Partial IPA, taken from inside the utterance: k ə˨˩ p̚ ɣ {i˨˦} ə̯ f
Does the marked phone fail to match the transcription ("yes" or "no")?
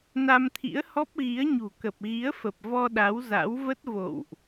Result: no